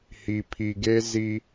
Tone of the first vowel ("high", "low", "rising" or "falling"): low